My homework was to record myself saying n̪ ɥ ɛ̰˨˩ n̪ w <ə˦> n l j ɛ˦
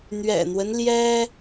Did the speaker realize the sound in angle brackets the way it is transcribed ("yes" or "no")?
yes